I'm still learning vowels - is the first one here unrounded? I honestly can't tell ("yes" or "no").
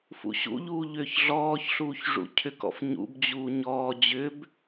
no